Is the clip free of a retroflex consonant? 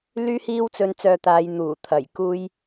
yes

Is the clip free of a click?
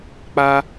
yes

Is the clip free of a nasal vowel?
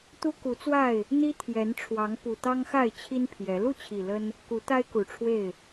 yes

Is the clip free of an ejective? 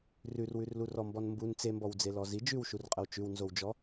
no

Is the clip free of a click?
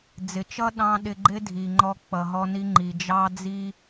no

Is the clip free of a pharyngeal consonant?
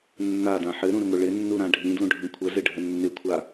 no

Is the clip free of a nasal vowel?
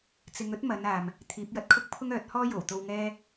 yes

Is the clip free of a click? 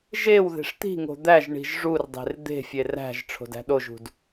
yes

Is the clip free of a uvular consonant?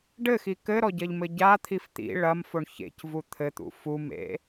yes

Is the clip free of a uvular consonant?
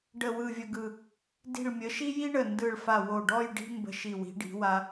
yes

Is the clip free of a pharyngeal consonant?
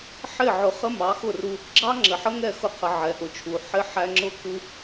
no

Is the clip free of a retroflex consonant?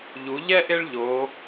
no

